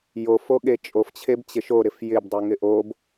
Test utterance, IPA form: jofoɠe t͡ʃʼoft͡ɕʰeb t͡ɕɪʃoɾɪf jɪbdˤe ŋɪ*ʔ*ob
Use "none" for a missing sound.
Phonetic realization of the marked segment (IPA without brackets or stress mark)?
ʔ